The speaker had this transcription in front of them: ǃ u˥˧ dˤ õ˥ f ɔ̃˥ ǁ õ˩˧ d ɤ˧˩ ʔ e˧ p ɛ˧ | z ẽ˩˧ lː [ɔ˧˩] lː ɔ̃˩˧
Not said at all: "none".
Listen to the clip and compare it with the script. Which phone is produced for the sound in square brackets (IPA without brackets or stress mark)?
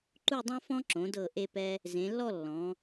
ɔ˥˧